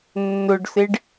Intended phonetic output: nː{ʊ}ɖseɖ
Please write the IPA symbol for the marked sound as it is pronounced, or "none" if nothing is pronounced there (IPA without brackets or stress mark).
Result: ʊ